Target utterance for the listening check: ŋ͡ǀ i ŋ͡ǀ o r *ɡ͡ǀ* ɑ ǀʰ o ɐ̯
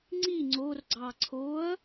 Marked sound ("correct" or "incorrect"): correct